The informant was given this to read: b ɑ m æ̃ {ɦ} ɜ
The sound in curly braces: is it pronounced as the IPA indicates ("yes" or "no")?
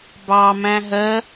yes